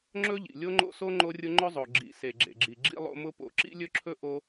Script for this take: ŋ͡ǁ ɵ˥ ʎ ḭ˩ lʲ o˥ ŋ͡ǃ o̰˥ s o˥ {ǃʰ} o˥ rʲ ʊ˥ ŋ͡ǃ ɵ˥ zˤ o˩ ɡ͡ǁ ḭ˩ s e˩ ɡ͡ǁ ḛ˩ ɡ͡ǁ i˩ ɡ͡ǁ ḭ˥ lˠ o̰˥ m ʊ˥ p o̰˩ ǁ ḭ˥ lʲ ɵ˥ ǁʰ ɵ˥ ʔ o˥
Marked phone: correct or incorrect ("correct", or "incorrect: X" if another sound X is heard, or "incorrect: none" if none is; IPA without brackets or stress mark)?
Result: incorrect: ŋ͡ǃ